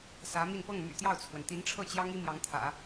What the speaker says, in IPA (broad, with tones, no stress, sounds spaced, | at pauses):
s ä˧˥ m i˥˧ n p ɤ˥˩ ŋ m y̰˨˩ t̪ j ɑ˥˩ ʊ̯ t͡sʰ w ə˩ n t̪ i˧˥ n ʈ͡ʂʰ ɤ˥˩ t͡ɕ j ɑ˥ ŋ i˥ m j ɑ˧˥ ŋ t̪ʰ ä̰˨˩˦